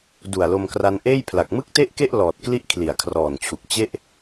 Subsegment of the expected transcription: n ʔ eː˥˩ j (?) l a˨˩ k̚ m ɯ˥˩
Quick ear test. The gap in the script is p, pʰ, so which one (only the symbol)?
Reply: pʰ